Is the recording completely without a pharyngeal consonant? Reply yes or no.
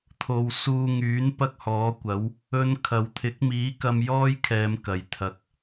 yes